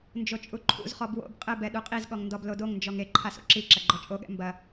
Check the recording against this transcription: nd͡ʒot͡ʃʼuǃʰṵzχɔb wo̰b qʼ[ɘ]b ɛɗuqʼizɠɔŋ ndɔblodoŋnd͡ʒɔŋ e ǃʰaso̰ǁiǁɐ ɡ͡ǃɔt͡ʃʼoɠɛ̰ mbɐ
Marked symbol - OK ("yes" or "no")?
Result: yes